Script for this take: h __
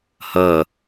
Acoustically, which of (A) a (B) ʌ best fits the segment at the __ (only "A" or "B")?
B